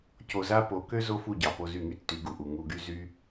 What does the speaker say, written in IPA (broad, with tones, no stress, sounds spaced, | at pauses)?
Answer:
c o˧ z a˦ p o˨˦ k ø˦ z o˦ f u˦˨ ɟ ɑ˨ p o˧ z y˦˨ ŋ y˦ tː y˨˦ ɡ u˨ ʔ u˨ ŋ u˧ ɡ y˦ z y˦